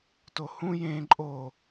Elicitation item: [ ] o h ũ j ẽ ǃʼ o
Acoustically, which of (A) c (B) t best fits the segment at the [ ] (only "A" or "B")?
B